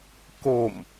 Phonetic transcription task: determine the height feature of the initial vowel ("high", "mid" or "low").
mid